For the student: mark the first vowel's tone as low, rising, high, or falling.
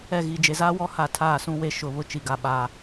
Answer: falling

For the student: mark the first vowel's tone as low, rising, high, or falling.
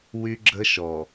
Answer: high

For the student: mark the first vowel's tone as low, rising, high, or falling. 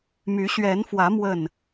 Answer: rising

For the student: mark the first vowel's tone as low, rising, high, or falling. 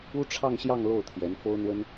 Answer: high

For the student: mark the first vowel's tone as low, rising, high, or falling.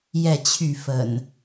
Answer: falling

